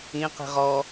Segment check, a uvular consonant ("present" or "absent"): present